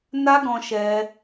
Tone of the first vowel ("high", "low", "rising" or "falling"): high